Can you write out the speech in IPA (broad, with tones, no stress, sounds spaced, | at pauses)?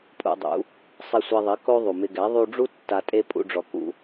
pʼ ṵ˧ dˤ ṵ˨˦ | sˤ i˧ sʷ e˧ ðˤ i˨˦ k o˦ ðˤ u˨ m ɪ˧ ɡ ɛ˨˦ ðˤ u˧ ɖ͡ʐ u˦ tː a˧ tʼ e˦ pʼ ṵ˦ ɖ͡ʐ ɔ˧ k ṵ˦